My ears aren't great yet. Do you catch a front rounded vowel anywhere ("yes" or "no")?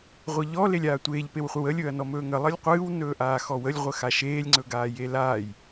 no